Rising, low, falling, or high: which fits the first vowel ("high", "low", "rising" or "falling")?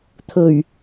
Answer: low